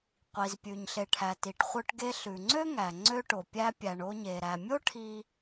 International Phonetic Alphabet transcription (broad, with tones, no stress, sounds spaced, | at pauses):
qʷ i˩ z pʲ ʉ˩ ɲ ɬ e˩ ʈʰ æ˩ t i˩ ʈ χʷ œ˧ ʈ ɡ e˧ ɬ ʉ˩ ŋ͡ǀ ø˥ ŋ æ˩ ŋ͡ǀ ø˧ ʈ o˩ pʲ æ˧ pʲ æ˩ ɳ o˧ ɲ e˩ ɾ æ˩ mʲ o˥ ʈʰ i˧